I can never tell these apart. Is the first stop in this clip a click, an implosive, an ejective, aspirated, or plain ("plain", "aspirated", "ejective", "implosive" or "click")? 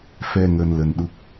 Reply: implosive